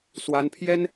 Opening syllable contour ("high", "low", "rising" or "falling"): high